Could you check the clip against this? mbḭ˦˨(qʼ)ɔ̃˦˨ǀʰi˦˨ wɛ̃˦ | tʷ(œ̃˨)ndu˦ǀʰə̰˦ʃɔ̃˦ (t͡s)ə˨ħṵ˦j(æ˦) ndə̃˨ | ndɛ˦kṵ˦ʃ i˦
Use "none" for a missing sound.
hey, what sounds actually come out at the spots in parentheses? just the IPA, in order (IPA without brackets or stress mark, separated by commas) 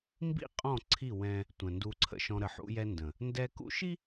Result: qʼ, ə̃˨, ɾ, ɛ˦